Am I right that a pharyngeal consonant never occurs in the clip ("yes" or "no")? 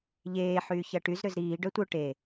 no